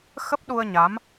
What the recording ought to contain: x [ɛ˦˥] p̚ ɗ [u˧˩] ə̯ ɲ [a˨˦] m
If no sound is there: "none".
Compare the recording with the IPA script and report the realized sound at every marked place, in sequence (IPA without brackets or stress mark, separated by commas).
ə˦˥, u˧, a˨˦